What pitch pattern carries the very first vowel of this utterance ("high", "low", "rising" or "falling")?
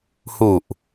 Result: low